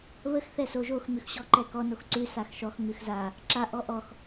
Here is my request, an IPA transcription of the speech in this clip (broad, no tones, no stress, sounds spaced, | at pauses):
β ə x θ ɛ s o ʒ o x m ʉ x ɕ ɔ ǃ ɛ k ɔ n o x ǀ ʉ s a x ʃ ɔ x ŋ ʉ x z a | ǁ a ʔ ɔ ʔ ɔ x